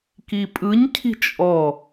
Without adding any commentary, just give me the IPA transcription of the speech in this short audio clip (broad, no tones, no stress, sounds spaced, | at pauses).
k i pʼ ɯ ɲ cʰ i̤ t͡ʃʼ ɔ